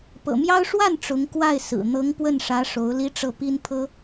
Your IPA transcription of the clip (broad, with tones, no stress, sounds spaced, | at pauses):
p ɤ̰˨˩ m j ɑ˥ ʊ̯ ʂ w a˥˩ n ʈ͡ʂ ʊ˧˥ ŋ k w a˥˩ ɪ̯ s ɹ̩˨˩ n̪ ɤ˧˥ ŋ p w ə˥˩ n ʂ ä˧˥ ʂ o˧˥ ʊ̯ l i˥ ʈ͡ʂ ɤ˥˩ p i˥ n pʰ ɤ˥